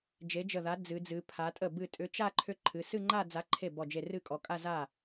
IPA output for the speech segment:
d͡ʒ e˨˥ d͡ʒ ə˧˩ ð a˨˥ d͡z ɨ˩˧ d͡z ɨ˩˧ pʰ a˩˧ tʼ ə˥˩ b ɨ˧˩ tʼ ʏ˨˥ t͡ʃ a˥˧ ǃʰ ʏ˥˧ ǃʰ ɨ˩˧˩ s ɨ˥˧ ŋ͡ǃ a˥˧ d͡z a˨˥ ǃʰ e˥˩ b ɔ˧˩ d͡ʒ e˧˩ r ɨ˥˩ kʼ ɔ˩˧ kʼ a˥˧ z a˥˩

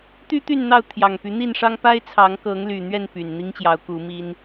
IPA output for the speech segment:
t̪ y˦ t̪ y˥˨ n n̪ ɑ˥˨ ʊ̯ t̪ʰ j ɑ˨˩ ŋ p y˨˦ n̪ i˥˨ n ʂ ɑ˦ ŋ p a˦ ɪ̯ t͡sʰ ɑ˨˦ ŋ k ɤ˨˦ ŋ l y˨˩ n̪ ɥ ɛ˥˨ n p y˨˩ n n̪ i˦ ŋ t͡ɕ j ɑ˨˦ ʊ̯ k u˨˦ m i˦ n

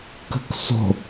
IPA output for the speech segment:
k ə̤ k s o̤

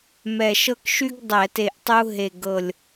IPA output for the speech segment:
m ɛ˧˩ ʃ ɤ˥ k ʃ y˥ ɡ dˤ ɛ˧˩˧ t e˧˩ ʔ tˤ u˥ ɦ e˧˩ ɡ ɤ˧˩ lʲ

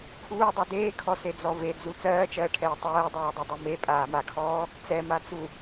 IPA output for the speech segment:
kʰ uː dˤ u d eː kʰ ɔ s e d͡z ɔ v e d͡z u t͡s ɜː t͡ʃ ɜː ʈʰ ɛː tˤ ɜː dˤ ɜː dˤ e dˤ ɜ m e pʼ aː m a kʰ ɔː | t͡s ɛ m a t͡s u

